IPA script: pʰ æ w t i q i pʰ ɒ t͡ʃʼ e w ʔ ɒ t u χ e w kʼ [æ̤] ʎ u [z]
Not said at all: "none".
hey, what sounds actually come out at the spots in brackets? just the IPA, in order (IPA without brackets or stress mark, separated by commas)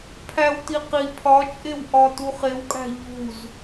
æ̤, z